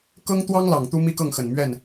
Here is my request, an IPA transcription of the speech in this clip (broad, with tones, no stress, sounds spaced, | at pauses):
k ɤ˥ ŋ t̪ w ɑ˥ ŋ l ɑ˨˩ ŋ t̪ u˥ m i˥ k ɤ˥˩ ŋ x ə˨˩ n m ɥ ɛ˥˩ n